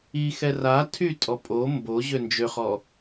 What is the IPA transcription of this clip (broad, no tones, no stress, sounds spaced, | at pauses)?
i x ɛ r a tʰ y tʼ ɔ pʼ o m b o ʑ ø n d͡ʒ ø χ ɔ